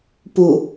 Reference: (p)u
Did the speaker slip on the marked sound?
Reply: no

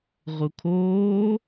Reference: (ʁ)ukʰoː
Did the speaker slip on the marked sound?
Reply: no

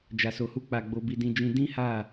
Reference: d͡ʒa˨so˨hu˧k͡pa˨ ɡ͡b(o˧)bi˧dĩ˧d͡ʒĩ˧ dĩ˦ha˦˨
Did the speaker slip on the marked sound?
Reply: no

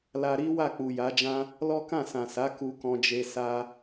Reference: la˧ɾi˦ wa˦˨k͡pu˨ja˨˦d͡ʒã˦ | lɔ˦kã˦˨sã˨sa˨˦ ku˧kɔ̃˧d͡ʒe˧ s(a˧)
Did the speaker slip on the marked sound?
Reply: no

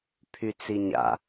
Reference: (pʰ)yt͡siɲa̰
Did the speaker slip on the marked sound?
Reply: no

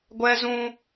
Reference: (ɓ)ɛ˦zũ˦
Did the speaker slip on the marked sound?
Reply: yes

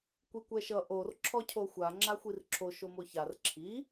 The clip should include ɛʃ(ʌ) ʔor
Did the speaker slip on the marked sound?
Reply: no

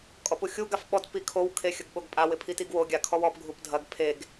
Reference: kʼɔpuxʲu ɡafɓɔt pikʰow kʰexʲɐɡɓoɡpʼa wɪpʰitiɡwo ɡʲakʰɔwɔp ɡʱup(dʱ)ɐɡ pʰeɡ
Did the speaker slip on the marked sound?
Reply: no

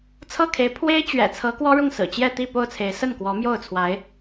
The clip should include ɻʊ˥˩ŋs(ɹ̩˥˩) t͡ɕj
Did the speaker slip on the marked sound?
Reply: yes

